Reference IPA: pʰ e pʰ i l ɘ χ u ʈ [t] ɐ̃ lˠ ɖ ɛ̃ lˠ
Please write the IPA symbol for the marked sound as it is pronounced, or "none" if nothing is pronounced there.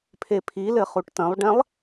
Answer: t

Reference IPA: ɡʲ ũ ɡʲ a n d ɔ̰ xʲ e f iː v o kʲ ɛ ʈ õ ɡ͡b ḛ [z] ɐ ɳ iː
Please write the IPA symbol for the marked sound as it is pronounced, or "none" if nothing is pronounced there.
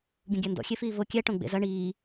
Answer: z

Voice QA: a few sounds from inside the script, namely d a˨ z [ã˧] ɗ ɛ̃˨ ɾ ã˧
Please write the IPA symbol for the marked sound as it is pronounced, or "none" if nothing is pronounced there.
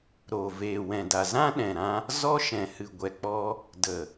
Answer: ã˦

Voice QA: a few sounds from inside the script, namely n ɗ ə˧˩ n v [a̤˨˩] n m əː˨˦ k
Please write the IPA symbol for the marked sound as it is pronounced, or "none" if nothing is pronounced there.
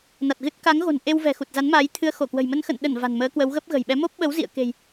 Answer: a̤˨˩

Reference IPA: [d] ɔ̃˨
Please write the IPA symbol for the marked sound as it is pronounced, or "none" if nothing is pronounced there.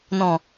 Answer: n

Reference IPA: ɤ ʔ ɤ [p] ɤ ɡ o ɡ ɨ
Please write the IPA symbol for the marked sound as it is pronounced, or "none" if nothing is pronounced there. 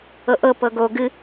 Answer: p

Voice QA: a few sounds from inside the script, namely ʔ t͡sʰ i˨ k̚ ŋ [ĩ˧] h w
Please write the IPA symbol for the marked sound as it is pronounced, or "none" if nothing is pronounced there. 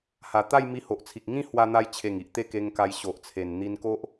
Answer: ĩ˦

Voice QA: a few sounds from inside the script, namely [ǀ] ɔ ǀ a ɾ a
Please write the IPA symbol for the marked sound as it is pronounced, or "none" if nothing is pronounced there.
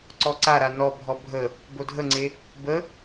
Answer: ǀ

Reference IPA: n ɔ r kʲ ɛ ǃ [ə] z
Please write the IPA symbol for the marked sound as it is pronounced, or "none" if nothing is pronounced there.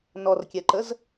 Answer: ə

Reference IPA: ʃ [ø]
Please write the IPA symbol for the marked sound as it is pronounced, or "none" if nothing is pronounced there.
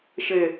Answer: ɘ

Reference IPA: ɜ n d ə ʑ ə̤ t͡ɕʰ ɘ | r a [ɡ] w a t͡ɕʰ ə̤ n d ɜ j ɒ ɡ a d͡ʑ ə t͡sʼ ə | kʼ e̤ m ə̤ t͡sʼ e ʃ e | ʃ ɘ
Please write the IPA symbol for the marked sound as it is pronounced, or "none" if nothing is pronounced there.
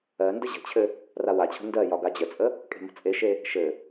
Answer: none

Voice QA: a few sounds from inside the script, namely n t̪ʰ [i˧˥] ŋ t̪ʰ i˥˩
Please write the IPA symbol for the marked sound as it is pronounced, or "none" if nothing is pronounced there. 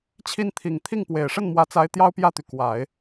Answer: i˨˩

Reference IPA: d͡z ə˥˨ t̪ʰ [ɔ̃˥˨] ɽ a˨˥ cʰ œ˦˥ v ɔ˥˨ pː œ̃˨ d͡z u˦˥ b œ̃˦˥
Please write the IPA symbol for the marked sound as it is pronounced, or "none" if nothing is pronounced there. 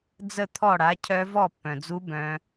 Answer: ɔ˥˨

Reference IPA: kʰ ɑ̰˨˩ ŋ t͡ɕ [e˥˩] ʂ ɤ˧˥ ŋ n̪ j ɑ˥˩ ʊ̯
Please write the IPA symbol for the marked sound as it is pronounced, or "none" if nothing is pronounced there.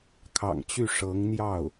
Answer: y˥˩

